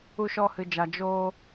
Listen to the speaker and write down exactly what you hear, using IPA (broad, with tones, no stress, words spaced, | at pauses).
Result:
u˧ʃɔ˧hɨ˨d͡ʒa˨ d͡ʒoː˧